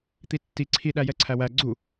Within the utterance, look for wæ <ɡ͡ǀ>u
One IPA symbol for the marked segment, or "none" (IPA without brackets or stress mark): ɡ͡ǀ